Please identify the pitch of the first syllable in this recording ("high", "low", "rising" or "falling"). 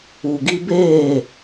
low